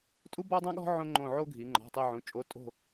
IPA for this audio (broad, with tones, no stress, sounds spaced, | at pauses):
tʼ u˥ b ɔ˥ dˤ ã˥ ɠ ɔ̤˥ ʕ õ˥ ŋ͡ǃ õ˦˨ ʕ o˥ ɡʱ i˩˧ ŋ͡ǃ ɔ̤˩˧˩ tˤ e˦˨ ʕ ũ˩˧˩ t͡ʃʼ o˨˥ tʼ o̤˦˨